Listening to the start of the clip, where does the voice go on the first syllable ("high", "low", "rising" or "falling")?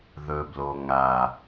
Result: low